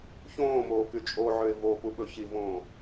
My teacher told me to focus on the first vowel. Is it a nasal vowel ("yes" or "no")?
yes